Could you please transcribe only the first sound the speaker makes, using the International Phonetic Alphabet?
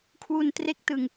kʰ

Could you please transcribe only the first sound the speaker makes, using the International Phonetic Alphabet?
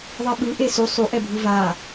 ðˤ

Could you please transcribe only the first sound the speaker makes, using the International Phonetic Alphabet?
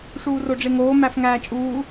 ʂ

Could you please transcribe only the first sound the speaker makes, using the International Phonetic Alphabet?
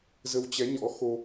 z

